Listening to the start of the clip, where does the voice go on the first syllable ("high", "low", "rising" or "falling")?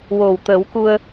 low